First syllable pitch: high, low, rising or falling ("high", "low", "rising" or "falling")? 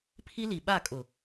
high